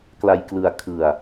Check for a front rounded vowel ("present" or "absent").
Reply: absent